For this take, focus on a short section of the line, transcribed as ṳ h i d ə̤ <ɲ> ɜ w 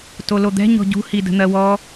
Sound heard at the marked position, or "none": n̪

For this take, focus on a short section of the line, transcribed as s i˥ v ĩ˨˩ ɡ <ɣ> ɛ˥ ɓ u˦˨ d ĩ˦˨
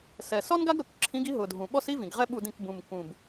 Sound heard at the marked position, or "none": ʁ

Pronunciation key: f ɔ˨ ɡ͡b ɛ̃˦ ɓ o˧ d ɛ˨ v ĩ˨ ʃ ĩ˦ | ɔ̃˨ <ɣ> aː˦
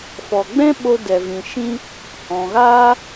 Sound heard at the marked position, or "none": ɣ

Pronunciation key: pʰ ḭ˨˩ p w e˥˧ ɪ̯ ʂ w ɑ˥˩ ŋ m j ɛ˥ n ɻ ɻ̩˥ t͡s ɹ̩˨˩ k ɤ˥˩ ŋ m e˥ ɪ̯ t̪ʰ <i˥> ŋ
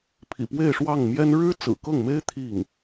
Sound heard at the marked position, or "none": i˥˩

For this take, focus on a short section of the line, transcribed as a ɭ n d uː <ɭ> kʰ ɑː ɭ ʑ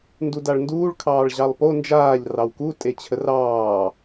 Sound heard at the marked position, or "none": ɭ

